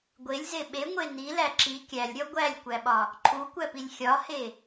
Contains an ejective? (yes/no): no